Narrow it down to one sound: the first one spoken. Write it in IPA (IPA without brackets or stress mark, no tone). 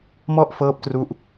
m